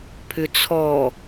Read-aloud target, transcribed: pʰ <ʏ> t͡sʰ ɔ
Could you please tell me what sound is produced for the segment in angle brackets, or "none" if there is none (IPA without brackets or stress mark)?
ʏ